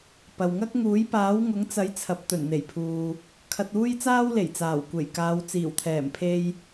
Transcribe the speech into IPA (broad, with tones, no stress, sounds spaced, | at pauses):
p ɐ˨ w ŋ ɐ˥ k̚ ŋ uː˨˥ j p aː˨˥ w ŋ ʊ˨˥ ŋ t͡s ɐ˨˥ j t͡sʰ ɐ˨˥ p̚ t̪ ɵ˨˩ n n̪ e˨˩ j pʰ uː˨ | kʰ ɐ˧ t̚ uː˥ j t͡s aː˥ w l e˨˩ j t͡s aː˨˩ w kʷ e˨˩ j k aː˨˧ w t͡s iː˨˩ w t̪ʰ ɛː˨˩ m pʰ e˧ j